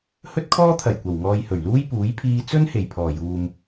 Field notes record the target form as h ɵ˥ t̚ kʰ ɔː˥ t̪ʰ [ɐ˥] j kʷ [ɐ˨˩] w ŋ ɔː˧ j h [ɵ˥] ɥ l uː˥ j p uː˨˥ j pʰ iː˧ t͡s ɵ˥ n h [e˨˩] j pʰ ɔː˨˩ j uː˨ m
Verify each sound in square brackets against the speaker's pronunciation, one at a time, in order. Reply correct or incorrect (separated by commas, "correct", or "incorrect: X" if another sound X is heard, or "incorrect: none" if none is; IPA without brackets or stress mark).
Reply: incorrect: ɐ˨˩, correct, incorrect: ɵ˨˩, correct